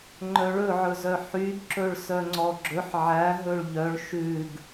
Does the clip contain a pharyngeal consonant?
yes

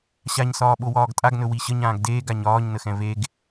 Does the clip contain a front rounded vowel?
no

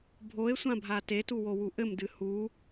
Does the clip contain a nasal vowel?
yes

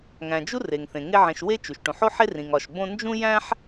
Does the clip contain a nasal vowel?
yes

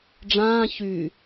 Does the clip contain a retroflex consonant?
yes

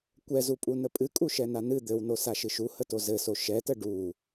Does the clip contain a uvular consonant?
no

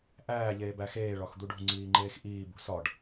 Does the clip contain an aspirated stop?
no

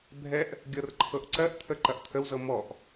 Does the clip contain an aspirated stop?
yes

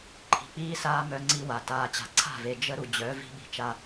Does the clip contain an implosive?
yes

